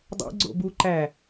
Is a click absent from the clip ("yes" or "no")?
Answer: no